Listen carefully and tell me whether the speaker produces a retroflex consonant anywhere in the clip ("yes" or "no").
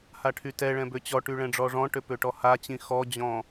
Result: yes